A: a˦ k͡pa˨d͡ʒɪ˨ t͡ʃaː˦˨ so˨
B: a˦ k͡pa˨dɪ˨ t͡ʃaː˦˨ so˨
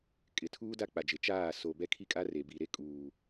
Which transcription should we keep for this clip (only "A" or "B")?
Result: A